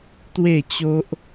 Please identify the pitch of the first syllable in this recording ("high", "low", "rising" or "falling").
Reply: falling